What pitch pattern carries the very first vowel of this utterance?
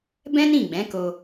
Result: high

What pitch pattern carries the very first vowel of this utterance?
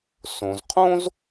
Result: low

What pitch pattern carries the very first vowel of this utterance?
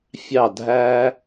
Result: falling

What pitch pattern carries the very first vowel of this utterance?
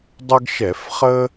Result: high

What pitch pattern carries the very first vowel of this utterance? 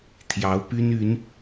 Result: rising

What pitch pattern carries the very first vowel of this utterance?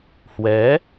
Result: rising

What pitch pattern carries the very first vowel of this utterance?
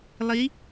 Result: rising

